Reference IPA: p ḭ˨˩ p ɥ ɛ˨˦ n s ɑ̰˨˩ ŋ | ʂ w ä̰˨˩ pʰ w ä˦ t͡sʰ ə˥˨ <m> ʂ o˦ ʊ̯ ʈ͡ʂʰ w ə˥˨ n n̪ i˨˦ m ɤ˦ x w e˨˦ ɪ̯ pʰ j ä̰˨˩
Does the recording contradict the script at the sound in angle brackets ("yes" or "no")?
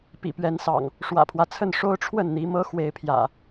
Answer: yes